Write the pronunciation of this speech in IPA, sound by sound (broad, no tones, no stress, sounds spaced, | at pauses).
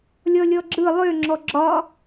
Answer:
lʲ ɔ lʲ ɔ ɡ͡ǁ ɯ lˠ ø ŋ͡ǁ ɔ ɡ͡ǁ ɒ